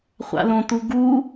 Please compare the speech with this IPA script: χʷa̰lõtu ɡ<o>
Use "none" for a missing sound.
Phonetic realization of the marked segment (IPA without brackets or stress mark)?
u